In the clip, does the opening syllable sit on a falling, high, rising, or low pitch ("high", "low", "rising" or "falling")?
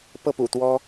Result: falling